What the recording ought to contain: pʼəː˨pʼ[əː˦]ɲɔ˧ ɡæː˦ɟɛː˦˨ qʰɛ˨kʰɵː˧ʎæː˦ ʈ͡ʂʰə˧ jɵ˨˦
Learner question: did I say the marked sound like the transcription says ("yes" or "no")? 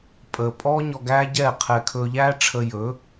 no